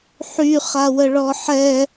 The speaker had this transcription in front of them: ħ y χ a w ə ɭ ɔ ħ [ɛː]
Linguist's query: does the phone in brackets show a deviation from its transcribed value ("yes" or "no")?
yes